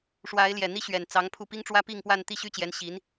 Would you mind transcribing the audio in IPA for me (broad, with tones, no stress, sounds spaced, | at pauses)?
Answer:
ʂ w a˧˥ ɪ̯ l j ɛ˨˩ n̪ i˥ ɕ ɥ ɛ˨˩ n t͡s ɑ˧˥ ŋ pʰ u˥˩ p i˥ ŋ ʈ͡ʂ w ä˥ p i˥˧ ŋ p w a˥˧ n t̪ i˥˩ ɕ y˥ t͡ɕ j ɛ˧˥ n ɕ i˧˥ n